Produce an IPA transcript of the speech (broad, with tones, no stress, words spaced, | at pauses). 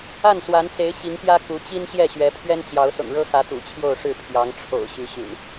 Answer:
a˥˨nswa˨˦nt͡se˨˦ɪ̯ ɕi˨˦ŋpjä˦ ku˨˦ t͡ɕi˦n ɕjɛ˥˨ɕɥɛ˨˦ pʰɥɛ˦nt͡ɕjɑ˨˦ʊ̯sʊ̰˨˩ŋɻɤ˦ xä˨˦ t̪ṵ˨˩t͡ɕʰjo˥˨ʊ̯ʂɻ̩˥˨ pʰjɑ˨˦ŋʈ͡ʂʰo̰˨˩ʊ̯ ɕy˨˦ɕy̰˨˩n